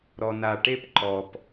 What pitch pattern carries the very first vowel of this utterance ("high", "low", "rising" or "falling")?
low